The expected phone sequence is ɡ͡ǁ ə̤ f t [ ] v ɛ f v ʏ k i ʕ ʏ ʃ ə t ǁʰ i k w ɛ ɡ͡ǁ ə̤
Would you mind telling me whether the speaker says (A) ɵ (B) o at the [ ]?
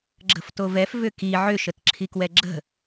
B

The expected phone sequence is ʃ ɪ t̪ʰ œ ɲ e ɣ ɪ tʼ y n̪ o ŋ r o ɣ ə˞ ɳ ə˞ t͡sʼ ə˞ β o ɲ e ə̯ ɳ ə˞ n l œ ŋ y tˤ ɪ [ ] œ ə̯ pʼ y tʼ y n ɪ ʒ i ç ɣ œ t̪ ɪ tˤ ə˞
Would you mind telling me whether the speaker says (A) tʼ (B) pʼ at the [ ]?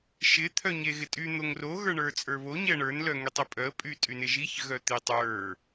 B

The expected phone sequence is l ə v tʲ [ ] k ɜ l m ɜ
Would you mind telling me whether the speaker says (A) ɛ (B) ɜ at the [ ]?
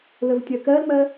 B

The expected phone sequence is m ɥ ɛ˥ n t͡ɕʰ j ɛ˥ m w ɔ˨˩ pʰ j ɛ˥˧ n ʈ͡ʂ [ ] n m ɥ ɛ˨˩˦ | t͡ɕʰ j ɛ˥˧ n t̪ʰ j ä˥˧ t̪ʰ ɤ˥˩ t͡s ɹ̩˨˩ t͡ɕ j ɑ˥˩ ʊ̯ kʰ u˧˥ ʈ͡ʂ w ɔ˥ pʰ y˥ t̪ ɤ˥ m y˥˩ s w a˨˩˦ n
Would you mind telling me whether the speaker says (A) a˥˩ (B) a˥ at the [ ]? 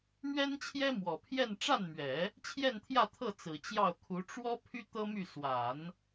A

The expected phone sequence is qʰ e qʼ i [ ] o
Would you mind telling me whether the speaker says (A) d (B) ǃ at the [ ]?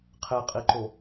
B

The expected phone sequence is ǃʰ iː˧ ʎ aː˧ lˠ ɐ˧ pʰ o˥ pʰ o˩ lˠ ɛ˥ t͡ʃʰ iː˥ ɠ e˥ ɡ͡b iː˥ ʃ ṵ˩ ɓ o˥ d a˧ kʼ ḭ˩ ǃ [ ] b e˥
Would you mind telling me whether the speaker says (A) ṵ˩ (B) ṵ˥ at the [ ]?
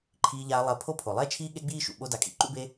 B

